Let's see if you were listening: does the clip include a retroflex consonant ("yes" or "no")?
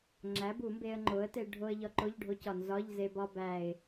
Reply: yes